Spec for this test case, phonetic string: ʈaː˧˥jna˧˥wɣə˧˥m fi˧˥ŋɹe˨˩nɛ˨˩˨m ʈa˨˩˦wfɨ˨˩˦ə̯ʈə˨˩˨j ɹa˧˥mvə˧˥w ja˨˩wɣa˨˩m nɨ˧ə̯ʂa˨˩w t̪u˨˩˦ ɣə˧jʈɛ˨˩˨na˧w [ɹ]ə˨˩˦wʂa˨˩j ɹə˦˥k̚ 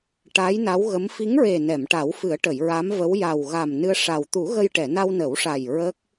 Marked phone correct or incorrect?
incorrect: n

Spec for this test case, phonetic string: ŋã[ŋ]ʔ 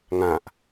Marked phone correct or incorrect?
incorrect: none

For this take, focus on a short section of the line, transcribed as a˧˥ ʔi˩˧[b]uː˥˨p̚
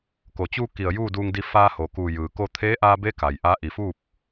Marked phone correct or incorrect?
incorrect: f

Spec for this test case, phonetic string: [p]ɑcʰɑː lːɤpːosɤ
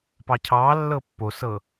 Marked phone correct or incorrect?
correct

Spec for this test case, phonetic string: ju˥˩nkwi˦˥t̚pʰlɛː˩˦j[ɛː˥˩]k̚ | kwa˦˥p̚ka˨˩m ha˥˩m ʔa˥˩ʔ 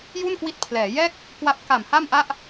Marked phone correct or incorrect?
correct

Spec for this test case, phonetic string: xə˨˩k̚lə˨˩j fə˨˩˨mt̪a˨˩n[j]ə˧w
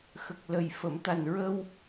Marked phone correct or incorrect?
incorrect: ɹ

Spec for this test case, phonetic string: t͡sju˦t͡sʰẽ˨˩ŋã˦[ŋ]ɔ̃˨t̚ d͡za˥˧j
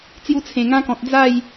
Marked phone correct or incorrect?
incorrect: k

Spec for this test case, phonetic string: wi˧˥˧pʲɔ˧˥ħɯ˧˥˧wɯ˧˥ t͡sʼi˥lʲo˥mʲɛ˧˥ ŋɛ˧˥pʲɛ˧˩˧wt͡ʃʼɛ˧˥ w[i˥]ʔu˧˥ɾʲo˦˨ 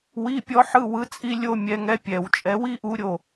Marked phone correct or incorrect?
correct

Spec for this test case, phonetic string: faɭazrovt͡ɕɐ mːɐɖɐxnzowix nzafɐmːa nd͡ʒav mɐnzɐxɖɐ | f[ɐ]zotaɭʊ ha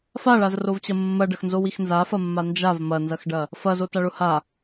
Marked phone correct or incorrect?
correct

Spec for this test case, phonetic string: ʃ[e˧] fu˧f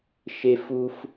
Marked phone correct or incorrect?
correct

